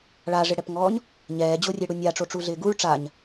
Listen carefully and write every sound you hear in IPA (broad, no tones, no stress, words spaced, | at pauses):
ɭaʐɪɽɛpŋɔːɲ | ɲɛːd͡ʑorʲeɽu nʲaʈ͡ʂoʈ͡ʂuɮɪː ɡuɭ ʈ͡ʂaɲ